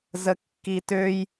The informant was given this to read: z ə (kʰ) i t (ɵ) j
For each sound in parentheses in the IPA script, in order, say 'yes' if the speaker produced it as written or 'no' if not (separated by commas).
no, no